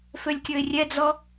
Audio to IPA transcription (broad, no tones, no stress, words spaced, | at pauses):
følʲkʲɵɪ̯rʲɛd͡zɔ